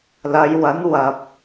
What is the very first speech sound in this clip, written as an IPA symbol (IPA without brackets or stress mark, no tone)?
l